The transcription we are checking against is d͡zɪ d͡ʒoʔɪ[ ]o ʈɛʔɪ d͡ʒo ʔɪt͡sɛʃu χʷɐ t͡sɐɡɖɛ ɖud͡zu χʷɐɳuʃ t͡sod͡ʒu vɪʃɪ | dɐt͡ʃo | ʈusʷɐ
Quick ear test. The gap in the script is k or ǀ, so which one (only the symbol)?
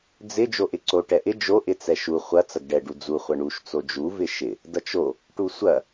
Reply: ǀ